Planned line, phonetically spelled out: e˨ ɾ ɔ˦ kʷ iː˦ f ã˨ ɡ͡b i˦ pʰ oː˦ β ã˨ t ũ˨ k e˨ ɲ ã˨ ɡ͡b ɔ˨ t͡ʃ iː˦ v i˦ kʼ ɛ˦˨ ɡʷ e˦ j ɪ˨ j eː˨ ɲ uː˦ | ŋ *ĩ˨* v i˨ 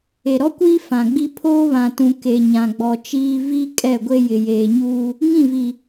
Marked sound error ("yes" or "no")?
yes